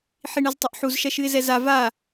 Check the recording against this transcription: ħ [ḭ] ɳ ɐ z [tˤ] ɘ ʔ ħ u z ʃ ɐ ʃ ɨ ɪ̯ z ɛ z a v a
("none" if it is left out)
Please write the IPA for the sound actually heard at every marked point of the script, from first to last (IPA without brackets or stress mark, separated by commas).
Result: i, tˤ